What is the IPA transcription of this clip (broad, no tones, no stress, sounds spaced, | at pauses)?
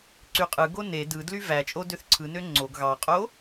ǀ y qʼ ɯ ɡ o n e d ɯ d l y v æ t͡ʃʼ o d ø θ ǀʰ ɯ n ø ŋ͡ǀ o ɡ ɣ ɑ qʼ o